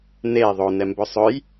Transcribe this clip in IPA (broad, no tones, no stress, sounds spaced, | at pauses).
n e ðˤ o n ɛ m b ɵ sˤ ɵ j